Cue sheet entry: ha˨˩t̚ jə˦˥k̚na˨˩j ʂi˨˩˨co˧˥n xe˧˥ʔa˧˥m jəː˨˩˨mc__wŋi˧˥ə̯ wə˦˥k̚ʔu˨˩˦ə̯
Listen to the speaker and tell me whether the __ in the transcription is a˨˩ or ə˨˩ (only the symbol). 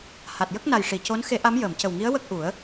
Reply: ə˨˩